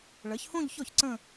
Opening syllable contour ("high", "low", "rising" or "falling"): rising